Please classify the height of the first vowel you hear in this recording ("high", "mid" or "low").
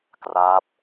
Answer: low